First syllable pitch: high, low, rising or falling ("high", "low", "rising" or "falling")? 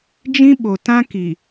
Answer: high